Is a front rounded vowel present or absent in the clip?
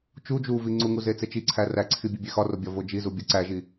absent